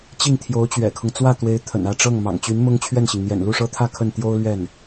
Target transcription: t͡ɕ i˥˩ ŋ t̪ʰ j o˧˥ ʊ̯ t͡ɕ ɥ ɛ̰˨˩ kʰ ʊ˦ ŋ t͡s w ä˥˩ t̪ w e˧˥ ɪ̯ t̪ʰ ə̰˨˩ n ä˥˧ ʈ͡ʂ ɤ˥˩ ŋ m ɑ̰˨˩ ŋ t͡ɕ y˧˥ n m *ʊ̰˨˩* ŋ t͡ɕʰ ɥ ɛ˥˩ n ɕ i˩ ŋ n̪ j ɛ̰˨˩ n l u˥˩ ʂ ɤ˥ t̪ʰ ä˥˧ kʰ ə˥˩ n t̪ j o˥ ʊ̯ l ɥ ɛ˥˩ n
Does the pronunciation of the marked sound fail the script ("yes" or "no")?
yes